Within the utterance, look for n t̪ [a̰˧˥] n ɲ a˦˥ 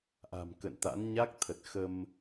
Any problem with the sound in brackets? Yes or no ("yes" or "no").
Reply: no